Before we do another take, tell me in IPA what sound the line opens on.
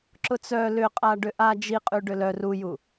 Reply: ǁ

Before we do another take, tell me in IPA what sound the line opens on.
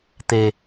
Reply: t̪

